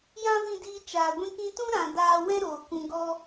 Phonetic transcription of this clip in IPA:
j ã˦ v ĩ˧ d iː˧ t͡ʃ aː˨ ɡʷ ĩ˧ k ĩ˧ t ũ˦ ɾ ã˨ d aː˧ w ɛ̃˦ ɾ oː˨ k ũ˧ ɡ ɔ˦

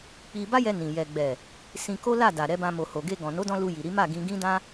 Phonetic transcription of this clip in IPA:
k͡p i˧ b a˦ j ɛ˧ n ĩ˨ j ɛ˨ ɡ͡b ɛ˨ | s ĩ˧ k o˦ l a˦˨ d a˨ ɾ ɛ˨˦ b ã˧ m o˨ h o˨ ɡ e˧ ɡ ɔ̃˨ n o˨˦ d ɔ̃˧ l u˧ j i˨ ɾ i˨˦ m a˦˨ ɡ ĩ˧ ɡ ĩ˦ d ã˦

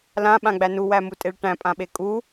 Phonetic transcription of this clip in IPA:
l ã ɓ ã ɡ͡b æ n u w æ m u tʼ e ɭ ʈ æ̃ pʼ ã ɓ e kʼ u

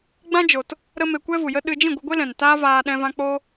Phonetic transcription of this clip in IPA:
ɡ͡b ã˦ d͡ʒ o˨ t | ɾ ə˦ m e˧ kʷ ɛ˦ v u˨ j ə˦ ɗ ɨ˧ d͡ʒ ĩ˦˨ ɡʷ ɨ˧ ɡʷ e˦ l ɛ̃˨ n t aː˦ v aː˧ ɗ ɛ̃˦ v ã˦ k͡p o˦

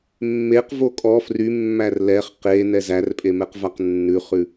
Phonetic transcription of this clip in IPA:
mː e q v o kʼ ɔ f r y mː æ r l ɛ χ q e n ɛ z æ r pʼ e m ɛ q v a q nː ʉ χ ʉ

